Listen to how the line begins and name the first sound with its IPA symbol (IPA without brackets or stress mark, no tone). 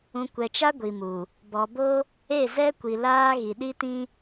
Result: ũ